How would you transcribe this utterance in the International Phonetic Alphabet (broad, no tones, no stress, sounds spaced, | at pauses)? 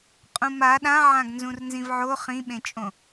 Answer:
qʼ ũ m a ɗ ã ʕ ã ɡ n z ũ r n z ĩ v ʕ o χ ĩ ɓ ẽ t͡ʃʼ õ